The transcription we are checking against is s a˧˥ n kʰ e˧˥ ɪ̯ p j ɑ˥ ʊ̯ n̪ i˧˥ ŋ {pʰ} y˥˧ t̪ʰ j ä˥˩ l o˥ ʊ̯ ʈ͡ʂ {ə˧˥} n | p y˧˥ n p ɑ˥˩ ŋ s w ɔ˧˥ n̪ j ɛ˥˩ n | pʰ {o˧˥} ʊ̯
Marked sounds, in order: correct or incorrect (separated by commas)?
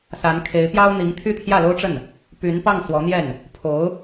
incorrect, incorrect, correct